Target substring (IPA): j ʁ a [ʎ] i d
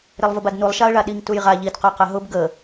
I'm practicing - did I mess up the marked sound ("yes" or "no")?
no